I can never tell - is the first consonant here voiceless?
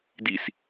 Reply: no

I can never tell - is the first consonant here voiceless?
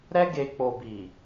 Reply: no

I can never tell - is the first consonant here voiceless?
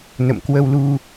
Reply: no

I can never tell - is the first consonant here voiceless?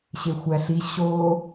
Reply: yes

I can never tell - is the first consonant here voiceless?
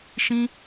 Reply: yes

